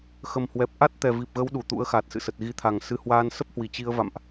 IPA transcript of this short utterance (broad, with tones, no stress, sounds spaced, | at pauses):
x ə˨˩ m h w ɛ˨˩ p̚ ʔ a˦˥ t̚ t̪ ɛ˨˩ v i˨˩ p̚ ɣ ə˨˦ w ɗ u˧˩ t̪ ṵ˧˥ ə̯ x a˨˩ t̚ s ɨ̰˧˨ s ə˨˩ t̚ ɣ i˨˦ t̪ʰ a˨˩ ŋ s ɨ˧ h w aː˧ n s ə˦˥ p̚ h w i˧˩ t͡ɕ i˧ ə̯ v a̰˧˨ m ʔ